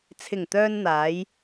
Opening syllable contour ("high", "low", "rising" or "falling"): low